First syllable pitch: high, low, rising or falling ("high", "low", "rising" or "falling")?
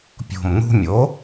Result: low